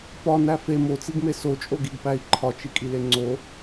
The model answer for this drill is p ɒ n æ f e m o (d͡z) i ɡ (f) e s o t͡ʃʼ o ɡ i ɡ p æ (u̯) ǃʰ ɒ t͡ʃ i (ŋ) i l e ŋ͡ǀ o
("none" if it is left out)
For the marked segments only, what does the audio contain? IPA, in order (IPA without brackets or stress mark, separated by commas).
t͡s, m, i̯, kʼ